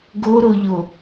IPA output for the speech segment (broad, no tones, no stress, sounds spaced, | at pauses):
ɡ o ɾ o ʎ o